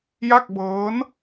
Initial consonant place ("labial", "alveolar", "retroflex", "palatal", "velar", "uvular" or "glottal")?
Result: palatal